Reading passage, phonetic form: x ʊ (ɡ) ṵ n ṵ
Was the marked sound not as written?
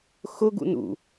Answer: no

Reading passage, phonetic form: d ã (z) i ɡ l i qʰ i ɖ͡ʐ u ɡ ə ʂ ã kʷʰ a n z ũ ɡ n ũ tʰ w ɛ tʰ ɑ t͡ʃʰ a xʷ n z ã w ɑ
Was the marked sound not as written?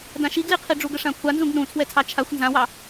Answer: yes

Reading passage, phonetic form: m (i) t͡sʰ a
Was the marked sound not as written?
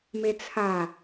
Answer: yes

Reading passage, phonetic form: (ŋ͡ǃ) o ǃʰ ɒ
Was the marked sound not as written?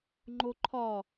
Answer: no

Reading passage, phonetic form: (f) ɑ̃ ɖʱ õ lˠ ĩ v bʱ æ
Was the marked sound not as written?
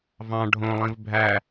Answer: yes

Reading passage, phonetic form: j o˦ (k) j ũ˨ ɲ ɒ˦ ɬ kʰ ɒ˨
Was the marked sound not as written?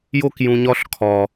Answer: no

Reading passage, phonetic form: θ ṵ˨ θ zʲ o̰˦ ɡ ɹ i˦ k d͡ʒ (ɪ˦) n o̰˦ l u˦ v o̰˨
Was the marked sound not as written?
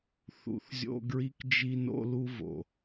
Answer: yes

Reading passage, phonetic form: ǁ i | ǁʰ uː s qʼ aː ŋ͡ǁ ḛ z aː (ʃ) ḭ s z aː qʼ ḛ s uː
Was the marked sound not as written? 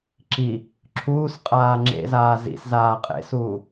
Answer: yes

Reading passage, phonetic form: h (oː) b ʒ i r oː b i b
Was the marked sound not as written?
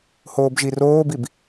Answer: no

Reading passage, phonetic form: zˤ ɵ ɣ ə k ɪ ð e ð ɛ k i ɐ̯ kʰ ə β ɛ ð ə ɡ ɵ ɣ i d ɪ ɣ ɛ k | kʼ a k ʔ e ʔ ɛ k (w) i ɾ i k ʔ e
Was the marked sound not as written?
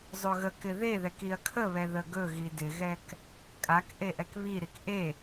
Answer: yes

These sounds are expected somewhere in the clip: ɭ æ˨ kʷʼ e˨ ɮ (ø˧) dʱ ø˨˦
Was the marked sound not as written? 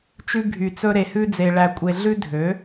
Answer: yes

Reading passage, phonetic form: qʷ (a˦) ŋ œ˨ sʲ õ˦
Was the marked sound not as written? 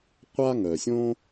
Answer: no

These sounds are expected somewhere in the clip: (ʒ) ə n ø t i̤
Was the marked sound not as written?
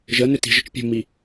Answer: no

